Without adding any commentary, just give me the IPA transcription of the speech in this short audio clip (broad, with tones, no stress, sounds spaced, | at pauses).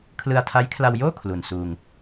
kʰ l ɯ˧ a̯ tʰ a˦˥ j kʰ l a˧ w j oː˥˩ kʰ l u˨˩ n s uː˧ ŋ